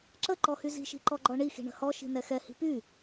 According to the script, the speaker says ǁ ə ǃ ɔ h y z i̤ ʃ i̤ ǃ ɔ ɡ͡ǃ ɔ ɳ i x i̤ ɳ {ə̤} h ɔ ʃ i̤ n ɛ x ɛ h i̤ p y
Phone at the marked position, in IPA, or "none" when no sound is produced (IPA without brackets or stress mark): ə̤